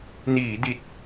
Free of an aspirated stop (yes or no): yes